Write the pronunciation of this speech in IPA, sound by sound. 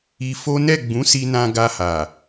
i˧ f o˦ n ɛ˦˨ ɡ͡b ũ˨˦ s i˧ n ã˧ ɡ a˧ h a˨

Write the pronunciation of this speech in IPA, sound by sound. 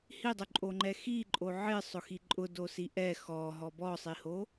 h i dˤ ʊ ǃʼ o ŋ͡ǃ ɛ x i ǃʼ o ʕ ɪ sˤ ʊ x i ǃʼ ʊ d o s i ʔ ɛ x ɔ ɦ ɔ b ɔ sˤ i h o

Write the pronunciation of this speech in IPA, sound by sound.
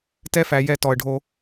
t ɛ˦ f æ˨ j ɛ˦˨ t ɔ˨ ə̯ ɖʱ o˦

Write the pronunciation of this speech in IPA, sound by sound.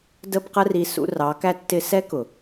d ə˦ b q ə˦ r i˧ s ṵ˦ r ɑ˨˦ k æ˦ tː ɪ˦ s ɛ˦ k ʊ˨

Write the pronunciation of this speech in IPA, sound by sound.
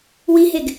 w i ɦ e ɡ

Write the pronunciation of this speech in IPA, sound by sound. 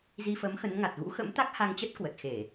z i˧ f ə˨˦ m x ə˨˦ n ŋ a˨˩ t̚ ɣ ṵ˧˥ x ə̰˧˥ m t̪ a˦˥ k̚ h a˧ ŋ t͡ɕ ə˦˥ t̚ k w ə˨˩ t̚ x e˧˩˨

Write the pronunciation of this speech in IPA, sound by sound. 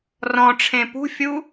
r ɔ̃ ʈ͡ʂʰ ẽ p ṳ fʲ u

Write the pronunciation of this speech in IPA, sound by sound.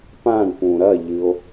p ã ɳ p ũ ɾ ɐ ʎ ɨ o̯

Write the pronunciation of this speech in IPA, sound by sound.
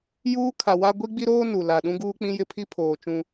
j uː˦ kʰ a˨ w a˦ ɡʷ i˦ ɡ͡b i˦ ɾ oː˦ n u˨ l a˨ ɗ ũ˦ ɡ uː˦ k͡p ĩ˦ j ɪ˦ pʰ i˦ pʰ oː˨ t͡ʃ ũ˦

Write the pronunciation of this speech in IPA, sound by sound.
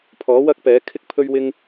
pʰ ɔː˨˥ w ɐ˥ k̚ p ɛː˨˥ kʰ ɪ˥ k̚ pʰ ɵ˧ ɥ w ɪ˧ ŋ

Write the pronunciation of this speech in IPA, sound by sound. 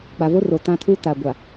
k͡p a˨ v o˦ r o˨ t ã˦ tʰ u˦ t a˨ ɡʷ a˨

